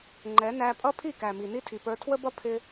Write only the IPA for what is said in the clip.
ŋ͡ǃɛ˨˦næ˧ pʼʌ˦pʰi˦˨kæ˨mi˨ ni˦tʰi˨pə˞˧ tʰwə˦bʌ˦ pʰɪ˦

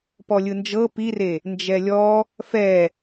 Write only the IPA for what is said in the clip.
pɔlʲɯnd͡ʒɤ pire | nd͡ʒɛlʲɔ | fɛ

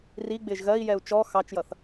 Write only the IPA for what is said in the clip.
riɡ͡bɪːʒ ɣɜi̯jɛu̯ t͡ʃɔ xɑt͡ʃjʌθ

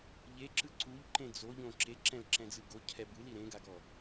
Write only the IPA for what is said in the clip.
ʎeǁɯ ǀuʎǃẽ d͡zoʎõ ǁeǁɛ̃lǁɛ̃d͡zɯ ɡocʰɛ bɯli ɾẽɡaɡɔ

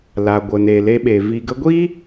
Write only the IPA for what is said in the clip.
la˨ ɡʷə˨ne˨le˧ɓe˨ vi˨ɡə˧ɡʷi˦

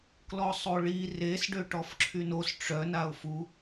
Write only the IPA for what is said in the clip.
klɔsˤoɭi res ɖøʈɔfǁʰynos ʈ͡ʂœ naʊ̯fu

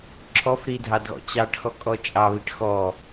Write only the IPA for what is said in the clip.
ǁʰɔfɾi dʱɑdɣɔ̰t͡ɕɑʈxɔ kʼɔt͡ʃʼɑβiʈ xɔ

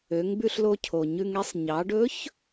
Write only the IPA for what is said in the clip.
ø˩˧ŋbʉ˧ɬlo˧cʰo˩ ɲʉ˧ŋɛ˧˥sˤ ɲɑ˩˧ɖɵ˧˥ç

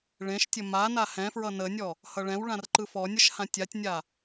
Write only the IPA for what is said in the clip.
ɭẽʃtʲə ma nahɛ̃fɹʌ nənʲɔ | hʌɭɛ̃wɭãr ǃɯfɔnʲəʃ hãtʲatʲnʲa

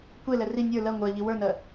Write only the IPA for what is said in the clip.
kʷelɛ ri nʲə˞ lɜ ŋʷɜʎi wə˞nɜ

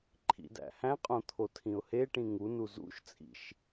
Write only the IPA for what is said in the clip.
ǃʰḭdæ̰hæ̃qʼõ t̪ʰotʰĩʊ̯heʈĩ ŋunu zṵʃ t͡sʼḭʃ

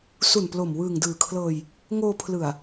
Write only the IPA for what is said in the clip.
su˨˩nplo˨˩m wɯː˨˩ŋdɯː˨˩kʰlɤː˧j | ŋoː˧ pʰlɯ˨˩a̯

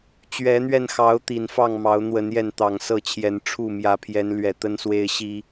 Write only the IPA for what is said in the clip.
t͡ɕɥɛ˨˦n̪ɥɛ˧nxɑ˨˦ʊ̯ t̪i˨˩nfɑ˥˨ŋ mɑ˨˦ʊ̯n̪wə˨˦n jɛ˥˨nt̪ɑ˨˩ŋsɤ˥˨t͡ɕʰjɛ˨˦n ʈ͡ʂʰu˥˨mjä˨˦pʰjɛ˨˦n lɥɛ˨˩t̪ə˦nswe˦ɪ̯ ɕi˨˩

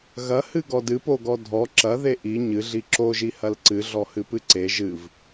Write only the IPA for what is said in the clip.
ɣɐhɨ ɡɔdɨpoɡɔ dʱɔ ǁɐ ðeʔi ɲɨɮi ǁoʒi hɐlǀɨ ɮɔhɨpɨǀe ʒɨv

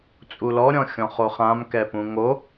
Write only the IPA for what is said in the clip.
t͡sʼulɔɾʲɔ̃ xʲɔ̃χoχãmkɛ pũŋo

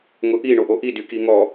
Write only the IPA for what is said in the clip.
ŋʊʔi ɳoʔoʔi dykiŋɔ

